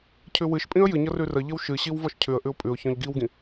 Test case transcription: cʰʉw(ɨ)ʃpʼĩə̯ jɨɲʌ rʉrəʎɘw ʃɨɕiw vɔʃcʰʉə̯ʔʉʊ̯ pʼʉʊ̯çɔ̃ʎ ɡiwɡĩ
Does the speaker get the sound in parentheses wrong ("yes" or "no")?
no